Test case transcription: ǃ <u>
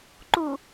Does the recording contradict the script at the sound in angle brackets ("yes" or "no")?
no